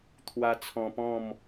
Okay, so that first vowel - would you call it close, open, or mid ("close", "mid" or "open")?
open